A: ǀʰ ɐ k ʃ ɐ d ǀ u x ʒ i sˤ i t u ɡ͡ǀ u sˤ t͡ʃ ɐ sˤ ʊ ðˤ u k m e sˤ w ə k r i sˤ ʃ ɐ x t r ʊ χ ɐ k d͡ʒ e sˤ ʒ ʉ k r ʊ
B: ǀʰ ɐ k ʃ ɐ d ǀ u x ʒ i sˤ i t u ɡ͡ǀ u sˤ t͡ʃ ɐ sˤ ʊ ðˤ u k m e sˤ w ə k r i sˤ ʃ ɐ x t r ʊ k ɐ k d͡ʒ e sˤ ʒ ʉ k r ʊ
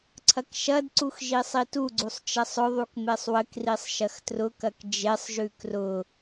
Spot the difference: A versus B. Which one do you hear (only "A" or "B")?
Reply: B